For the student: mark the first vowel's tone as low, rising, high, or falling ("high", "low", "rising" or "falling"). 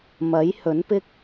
rising